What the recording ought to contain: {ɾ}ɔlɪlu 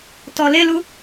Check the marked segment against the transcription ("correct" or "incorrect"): incorrect